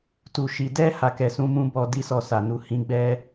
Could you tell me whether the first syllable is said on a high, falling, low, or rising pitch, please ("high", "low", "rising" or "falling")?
low